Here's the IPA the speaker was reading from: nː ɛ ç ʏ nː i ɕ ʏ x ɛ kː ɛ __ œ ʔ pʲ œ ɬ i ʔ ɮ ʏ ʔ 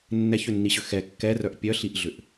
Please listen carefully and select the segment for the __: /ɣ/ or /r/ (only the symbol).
r